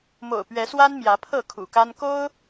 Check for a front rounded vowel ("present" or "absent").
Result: absent